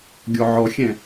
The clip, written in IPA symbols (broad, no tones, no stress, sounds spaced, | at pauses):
ɡʲ ɔ ʕ ɔ xʲ ɛ̃